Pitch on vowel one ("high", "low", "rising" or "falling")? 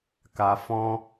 low